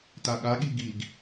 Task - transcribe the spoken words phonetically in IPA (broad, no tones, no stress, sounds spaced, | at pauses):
t a ɠ a ɠ i ɡ i ɡ